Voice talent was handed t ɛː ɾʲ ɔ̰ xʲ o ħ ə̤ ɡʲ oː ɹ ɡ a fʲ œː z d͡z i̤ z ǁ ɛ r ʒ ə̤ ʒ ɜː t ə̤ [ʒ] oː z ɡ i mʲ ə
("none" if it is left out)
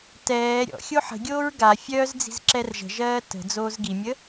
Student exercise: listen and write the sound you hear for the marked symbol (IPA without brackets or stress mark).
d͡z